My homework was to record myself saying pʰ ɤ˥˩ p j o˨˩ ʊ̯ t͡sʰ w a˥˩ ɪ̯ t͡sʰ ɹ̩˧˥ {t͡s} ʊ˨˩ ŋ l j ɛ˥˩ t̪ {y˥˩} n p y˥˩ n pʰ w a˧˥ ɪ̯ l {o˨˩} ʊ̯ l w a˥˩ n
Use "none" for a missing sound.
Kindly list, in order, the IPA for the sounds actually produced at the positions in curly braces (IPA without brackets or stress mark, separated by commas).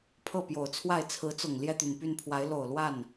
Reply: t͡s, y˨˩, o˨˩